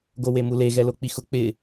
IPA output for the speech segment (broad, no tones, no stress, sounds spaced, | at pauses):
ɡ o w e m u l e ɣ ɛ l o k͡p i x ʊ k͡p ɪ